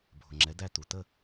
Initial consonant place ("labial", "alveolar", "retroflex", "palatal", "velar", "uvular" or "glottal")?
labial